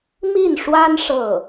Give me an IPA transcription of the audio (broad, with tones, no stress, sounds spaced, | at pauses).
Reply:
m i˥˩ n ʂ w a˥ n ʂ ɤ˥˩